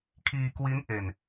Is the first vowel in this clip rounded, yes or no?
no